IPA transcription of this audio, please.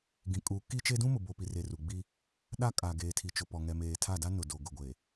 ɡ ĩ˨ kʼ uː˨ k i˦ t͡ʃ e˦ d ũ˦ m ʊ˨ b o˨ p i˨ r e˨ r u˨ ɡ͡b i˦ | ɗ a˦ kʼ a˨ ɡ eː˨ tʰ i˨ t͡ʃ ʊ˨ p ɔ˨ ŋ ɛ˨ m eː˨ tʰ a˦˨ d a˦ n ʊ˨ d o˨ ɡ ʊ˨ ɡʷ e˨

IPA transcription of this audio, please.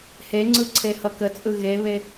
h e ŋ͡ǀ ɯ ǀʰ e h ʌ k ə t͡sʼ ɯ ɣ e β e

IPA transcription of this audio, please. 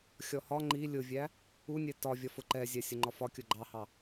xʲ ɔ h ɒ ŋ͡ǃ i lʲ ʊ vʲ æ | u nʲ ɛ t ɒ vʲ ɒ f ʊ ǃ ɛ zʲ æ sʲ ʊ ŋ͡ǃ ɒ f ɒ kʲ ʊ ɡ͡ǃ ɑ h ɑ

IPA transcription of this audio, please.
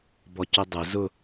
b ɔ c ʊ dˤ ʊ z ʊ

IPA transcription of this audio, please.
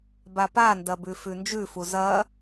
b a p a n d ɐ b ʉ f ʉ n d͡ʒ ʉ f u z ɐ

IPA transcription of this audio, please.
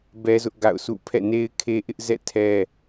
b ɛ˦ z ʊ˦ ʔ ɡ a̰˦˨ ʊ̯ sʰ ṵ˦˨ pʰ ɛ̰˦˨ n e˦ ɪ̯ kʰ e˦ ʔ ɪ˦ ʔ z ɛ̰˦˨ tʰ ɛ˦

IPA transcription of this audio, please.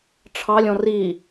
ʈ͡ʂʰ ɑ lʲ ɔ̃ r i

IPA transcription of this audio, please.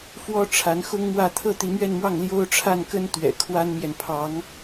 f w ɔ˥ ʈ͡ʂʰ a˧˥ n x ʊ˥ ŋ m w ä˥˧ t̪ʰ ɤ˥˩ t̪ i˧˥ m ɥ ɛ˥˧ n m w ɑ˥˩ ŋ l j o˥ ʊ̯ ʈ͡ʂʰ a˥˩ n k ə˥ n t̪ ɥ ɛ̰˨˩ kʰ w a˥ n m j ɛ˨ n pʰ ɑ˧˥ ŋ

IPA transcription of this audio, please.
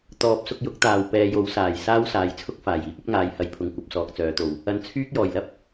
t̪ ɔː˨˥ p̚ s ʊ˧ k̚ j ʊ˨˥ k̚ t̪ aː˨ w p ɛː˨˧ j o˨˥ w s aː˨˩ j s aː˥ w s aː˨˧ j t͡sʰ ʊ˥ k̚ f aː˨˩ j iː˥ p̚ ɐ˥ p̚ ŋ aː˨˧ j h ɐ˨ j pʰ ʊ˨ ŋ kʷ ɐ˨˥ p̚ s ɔː˨˥ k̚ t͡s œː˨˥ t̪ o˨ w | ɐ˧ n t͡sʰ yː˥ k̚ j ɔː˨˩ j l ɐ˥ p̚

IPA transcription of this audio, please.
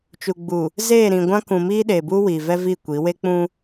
t͡ʃ u˨ ɡ͡b u˨ | z eː˦˨ ɾ ĩ˨ ɡʷ ã˦ k ũ˨ m iː˦ ɗ e˨ b u˦ w iː˨ v ɛ˦ v i˦˨ kʷ i˨˦ w e˦ k͡p ũ˦

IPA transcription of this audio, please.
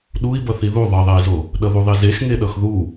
ɗ u i̯ b ʌ θ i ð u ðˤ ʌ ðˤ ɛ i̯ z o | ɗ ʌ ð u ðˤ i z e x ŋ e ɗ ʌ x ð u

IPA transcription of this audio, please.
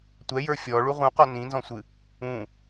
tʷ ɛ j ə˞ fʲ ɔ ɭ u ʁ ũ q ɔ n ĩ n z ɔ̃ sʷ ɨ | ũ

